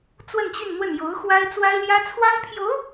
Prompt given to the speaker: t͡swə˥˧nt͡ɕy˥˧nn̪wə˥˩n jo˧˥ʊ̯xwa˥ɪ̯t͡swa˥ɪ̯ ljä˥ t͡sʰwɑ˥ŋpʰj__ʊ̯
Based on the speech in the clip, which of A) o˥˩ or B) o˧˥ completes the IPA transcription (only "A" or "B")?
B